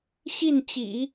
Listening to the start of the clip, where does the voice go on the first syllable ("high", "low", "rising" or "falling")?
falling